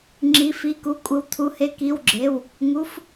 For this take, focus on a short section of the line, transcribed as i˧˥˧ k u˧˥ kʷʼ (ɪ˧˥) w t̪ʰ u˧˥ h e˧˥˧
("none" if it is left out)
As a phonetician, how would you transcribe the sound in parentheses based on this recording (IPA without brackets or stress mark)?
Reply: ɪ˧˥